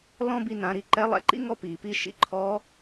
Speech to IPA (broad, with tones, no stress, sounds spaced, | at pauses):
l ɔ̃˥ b i˧ n ã˩˧ ɾ i˧ ǃ ɛ˧˥ lˠ ɛ̰˧ ǃ ḭ˥ ŋ ɔ˥ p iː˩ p iː˧ ʃ ḭ˧˥ ǃʰ ɔː˧˥